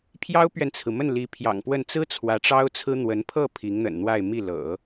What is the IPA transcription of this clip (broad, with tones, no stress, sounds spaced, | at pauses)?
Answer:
pʰ j ɑ˥ ʊ̯ p ɥ ɛ˨ n t͡sʰ ɹ̩˩ m ə˥˩ n l i˧˥ pʰ j ɑ̰˨˩ ŋ p w ə˥˩ n t͡s ɹ̩˥ t͡sʰ w ä˧˥ ʈ͡ʂ ɑ˥ ʊ̯ t͡sʰ ɹ̩˥ n̪ w ə˧˥ n pʰ ɤ˥˩ pʰ i˧˥ ŋ n̪ ə̰˨˩ n n̪ w a˥˧ ɪ̯ m i˥˩ l ɤ̰˨˩˦